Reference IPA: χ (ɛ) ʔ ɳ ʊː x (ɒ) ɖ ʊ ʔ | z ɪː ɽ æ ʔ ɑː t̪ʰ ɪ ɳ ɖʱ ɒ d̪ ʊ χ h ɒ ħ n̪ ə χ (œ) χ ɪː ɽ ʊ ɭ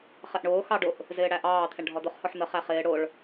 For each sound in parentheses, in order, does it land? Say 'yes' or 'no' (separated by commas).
yes, no, no